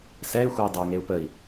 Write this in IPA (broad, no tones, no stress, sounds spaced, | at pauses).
s ɛ y̯ xʷ ɛ i̯ dˤ ɛ y̯ ŋ e u̯ p ə i̯